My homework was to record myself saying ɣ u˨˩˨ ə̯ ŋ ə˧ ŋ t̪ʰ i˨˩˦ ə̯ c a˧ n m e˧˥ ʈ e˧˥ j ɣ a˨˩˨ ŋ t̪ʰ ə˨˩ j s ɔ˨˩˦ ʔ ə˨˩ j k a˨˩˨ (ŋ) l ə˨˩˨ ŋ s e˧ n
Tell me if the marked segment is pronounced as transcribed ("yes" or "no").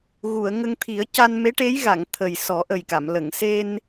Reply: no